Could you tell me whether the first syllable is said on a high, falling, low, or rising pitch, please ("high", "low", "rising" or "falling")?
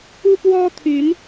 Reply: high